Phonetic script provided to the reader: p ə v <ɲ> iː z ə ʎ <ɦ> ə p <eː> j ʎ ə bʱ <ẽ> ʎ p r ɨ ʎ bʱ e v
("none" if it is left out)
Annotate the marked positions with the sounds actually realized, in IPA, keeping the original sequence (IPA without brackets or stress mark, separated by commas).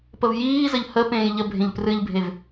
j, h, ẽː, ẽ